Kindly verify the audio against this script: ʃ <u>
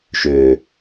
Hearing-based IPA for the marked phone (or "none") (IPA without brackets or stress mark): ø